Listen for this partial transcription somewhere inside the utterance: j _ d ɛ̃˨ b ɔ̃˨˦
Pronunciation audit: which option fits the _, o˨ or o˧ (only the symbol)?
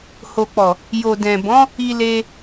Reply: o˨